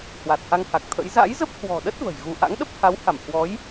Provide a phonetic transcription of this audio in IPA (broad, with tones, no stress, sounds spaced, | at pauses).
h w a˨˩ t̚ h a˧ ŋ h a˨˩ k̚ t̪ʰ ə̰˧˥ j z a̰˧˥ j z ə˦˥ p̚ h w ɔ̤˨˩ ɗ ə˦˥ t̚ v ə̤˨˩ j ɣ u˧ ʔ a̰˧˥ ŋ ɗ ə˦˥ p̚ h a˨˦ w h a˧˩ m h w ɔ˨˦ j